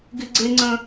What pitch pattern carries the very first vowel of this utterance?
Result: high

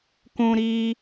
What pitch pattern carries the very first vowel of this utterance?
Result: high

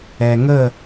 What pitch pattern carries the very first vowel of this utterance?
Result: low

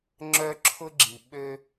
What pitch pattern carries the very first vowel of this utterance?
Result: high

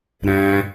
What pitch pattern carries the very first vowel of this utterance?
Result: high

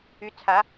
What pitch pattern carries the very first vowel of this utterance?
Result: rising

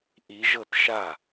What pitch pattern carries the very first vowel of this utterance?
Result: rising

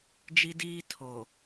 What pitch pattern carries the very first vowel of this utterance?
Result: high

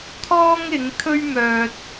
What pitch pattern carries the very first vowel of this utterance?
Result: high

